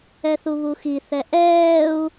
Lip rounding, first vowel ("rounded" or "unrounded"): unrounded